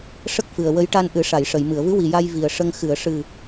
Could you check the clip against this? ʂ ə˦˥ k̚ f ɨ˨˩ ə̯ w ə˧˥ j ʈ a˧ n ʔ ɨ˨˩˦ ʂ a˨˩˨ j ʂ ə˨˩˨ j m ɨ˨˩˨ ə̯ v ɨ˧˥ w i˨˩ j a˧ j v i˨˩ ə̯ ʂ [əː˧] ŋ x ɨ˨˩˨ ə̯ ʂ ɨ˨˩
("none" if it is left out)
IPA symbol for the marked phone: ə˧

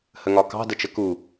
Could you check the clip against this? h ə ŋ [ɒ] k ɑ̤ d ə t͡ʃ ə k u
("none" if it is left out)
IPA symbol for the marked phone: ɒ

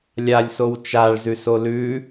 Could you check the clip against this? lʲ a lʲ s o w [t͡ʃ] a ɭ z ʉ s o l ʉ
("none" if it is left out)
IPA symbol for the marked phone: t͡ʃ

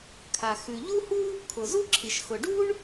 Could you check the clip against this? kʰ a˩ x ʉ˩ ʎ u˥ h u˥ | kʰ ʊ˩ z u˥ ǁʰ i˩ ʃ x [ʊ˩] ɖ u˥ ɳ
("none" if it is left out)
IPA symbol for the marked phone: ʊ˩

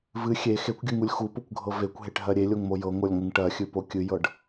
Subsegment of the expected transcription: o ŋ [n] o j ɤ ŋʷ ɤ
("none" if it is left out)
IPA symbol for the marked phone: m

